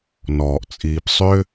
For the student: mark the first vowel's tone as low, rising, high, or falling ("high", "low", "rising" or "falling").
low